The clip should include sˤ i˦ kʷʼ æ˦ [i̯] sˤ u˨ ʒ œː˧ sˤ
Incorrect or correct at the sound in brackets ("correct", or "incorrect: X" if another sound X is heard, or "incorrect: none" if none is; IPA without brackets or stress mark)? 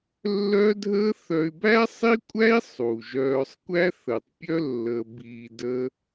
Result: correct